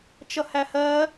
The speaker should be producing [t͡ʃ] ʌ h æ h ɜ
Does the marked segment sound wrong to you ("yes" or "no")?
no